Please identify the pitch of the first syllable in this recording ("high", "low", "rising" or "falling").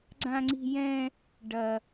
high